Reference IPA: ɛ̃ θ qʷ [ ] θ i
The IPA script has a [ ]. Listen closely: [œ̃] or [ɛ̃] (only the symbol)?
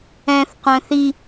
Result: œ̃